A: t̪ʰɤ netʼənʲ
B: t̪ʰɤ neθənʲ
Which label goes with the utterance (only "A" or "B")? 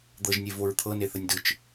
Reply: B